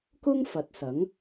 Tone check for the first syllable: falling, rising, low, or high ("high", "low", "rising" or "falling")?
high